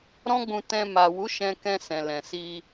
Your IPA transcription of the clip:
ɾɔ̃˦ɡ͡bũ˧tɛ̃˧ ma˨wu˨˦ ʃɛ̃˧kɛ̃˧ sɛ̃˨lɛ̃˨si˧

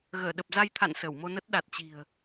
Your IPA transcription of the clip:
ɣəː˧˩ɗə˨˩p̚za˧jt̪ʰa̰˧˨n sə˧˩wmo˧nə˦˥t̚ ɗa˨˩t̚t͡ɕi̤˨˩ə̯

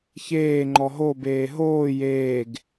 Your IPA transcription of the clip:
çeːŋ͡ǃɔ ɦobeː ɦoː jeːɡ

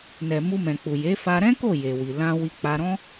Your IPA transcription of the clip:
nɛ˨ mu˧mɛ̃˨k͡pu˨je˨˦ fa˧ɾɛ̃˦ko˦˨ je˨ wi˨ lã˧ wi˧k͡pa˧ɾɔ̃˦

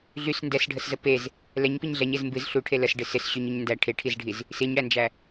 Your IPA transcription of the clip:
ɮys ndɛsɖʱəszə pez | lɛɲpiɲ ɮɛɲez mbɨz ɬuʈʰe ləsɖɪ sɪsɕyɲyɲ ndæ ʈʰeʈʰizɖʱiz | siɲɽænd͡ʒæ

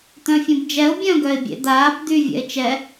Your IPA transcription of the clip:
t̪œ̃fʲõbd͡ʒɛʊ̯ bʲœ̃ ɡœɪ̯bʲḛd̪aːb d̪y vʲɛ̰ɪ̯t͡ʃɛ

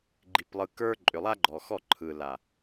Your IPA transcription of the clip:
ɡ͡ǃi˨plˠɯ˨ kə˞˦ ǃʼʏ˨lˠa˦ɡ͡ǃɔ˨xɔ˦˨ ǃʰɯ˨la˨

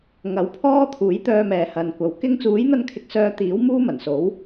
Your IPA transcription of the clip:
ŋɐ˨˥wpʰɔː˥ t̪ʰuː˨˥jt̪œː˧mɛː˨ hɐ˨nkʷɐ˨˧w kɪ˧ŋt͡suː˨˥jn̪ɐ˧nkʰɪ˨˥k̚ sœː˧t̪iː˨˥w muː˥mɐ˨˩nso˨˥w

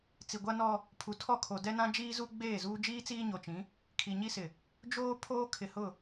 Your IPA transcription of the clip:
t͡si˨ɡʷa˦nɔ˦ | pʰu˨tʰɔ˦˨kʰo˨ dɛ˦nã˦d͡ʒiː˦zu˦ ɡ͡beː˦˨zuː˦d͡ʒiː˦t͡siː˦ ɲo˨t͡ʃĩ˨˦ | kʰi˨ɲi˦sɪ˨ | d͡ʒoː˦ pʰoː˦kʰɪ˨hʊ˦˨

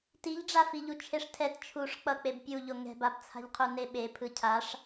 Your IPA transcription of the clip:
tiʎɖ͡ʐa fiʎut͡ʃʰeʂtʰɛt t͡ʃʰuʂk͡pʌk͡peb pʲuʎo ŋɛ̤babt͡sʰa̤ʎqʰu neɓe pʰɯcʰaʂ

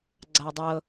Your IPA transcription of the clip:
ɡ͡ǀaə̯dˤɤ

